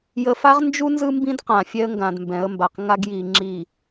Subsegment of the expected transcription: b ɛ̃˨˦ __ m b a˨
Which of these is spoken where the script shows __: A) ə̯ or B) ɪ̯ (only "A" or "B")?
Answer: A